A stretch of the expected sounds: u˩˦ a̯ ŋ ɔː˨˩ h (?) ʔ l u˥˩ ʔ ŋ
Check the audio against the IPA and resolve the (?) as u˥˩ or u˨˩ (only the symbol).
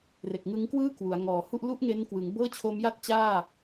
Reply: u˥˩